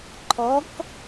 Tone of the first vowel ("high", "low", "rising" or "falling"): rising